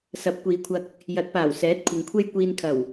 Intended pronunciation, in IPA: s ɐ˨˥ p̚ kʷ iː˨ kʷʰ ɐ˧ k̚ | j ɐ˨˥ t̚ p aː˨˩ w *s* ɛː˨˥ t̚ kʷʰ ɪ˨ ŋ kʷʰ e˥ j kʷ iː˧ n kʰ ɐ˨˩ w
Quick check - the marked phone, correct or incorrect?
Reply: correct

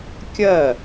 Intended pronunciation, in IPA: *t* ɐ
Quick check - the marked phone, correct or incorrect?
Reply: incorrect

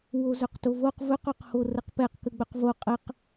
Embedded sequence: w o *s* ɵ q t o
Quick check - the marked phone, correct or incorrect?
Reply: incorrect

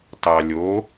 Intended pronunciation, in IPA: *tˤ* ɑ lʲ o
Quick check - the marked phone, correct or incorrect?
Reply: incorrect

